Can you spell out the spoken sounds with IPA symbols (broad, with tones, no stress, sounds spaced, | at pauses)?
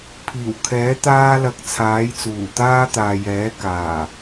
pʰ iː˨˩ w kʰ ɛː˨˥ t̪ aː˥ l ɐ˧ k̚ t͡sʰ aː˨˥ j t͡s uː˨˩ t̪ aː˥ t̪ aː˨ j ɛː˨˥ k aː˨˩